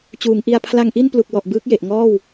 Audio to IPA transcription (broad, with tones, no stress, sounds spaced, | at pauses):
t͡ɕ uː˩˦ ŋ ʔ i˧ a̯ pʰ l a˧ ŋ ʔ i˥˩ n p l u˨˩ k̚ w ɔ˨˩ ʔ b ɯː˦˥ k̚ j e˨˩ ʔ ŋ ɔː˥˩ w